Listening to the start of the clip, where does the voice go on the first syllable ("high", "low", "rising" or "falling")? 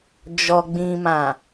low